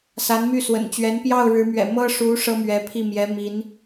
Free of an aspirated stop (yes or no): no